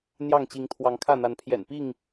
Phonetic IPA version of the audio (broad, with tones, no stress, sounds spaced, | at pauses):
n̪ j ɑ˥˨ ŋ t͡ɕ i˨˦ ŋ t̪ʰ w ɑ˨˦ ŋ kʰ ä˥˨ n̪ a˨˦ n pʰ j ɛ̰˨˩ n p i˥˨ ŋ